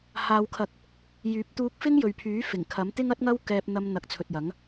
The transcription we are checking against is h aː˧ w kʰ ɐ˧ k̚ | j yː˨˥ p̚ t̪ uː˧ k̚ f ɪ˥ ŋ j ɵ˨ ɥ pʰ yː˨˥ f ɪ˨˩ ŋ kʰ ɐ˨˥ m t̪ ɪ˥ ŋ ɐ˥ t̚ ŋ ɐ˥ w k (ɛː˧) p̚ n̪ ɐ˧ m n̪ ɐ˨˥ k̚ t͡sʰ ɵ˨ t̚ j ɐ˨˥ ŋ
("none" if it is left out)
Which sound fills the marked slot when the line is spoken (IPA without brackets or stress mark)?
ɛː˧